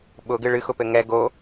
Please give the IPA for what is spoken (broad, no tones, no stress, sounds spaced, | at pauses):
ɓ ʊ ɡ ɨ ɭ ɨ x ʊ p ɘ ŋ ɛ ɡ o